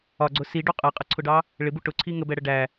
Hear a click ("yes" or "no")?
yes